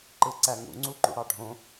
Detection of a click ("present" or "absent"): present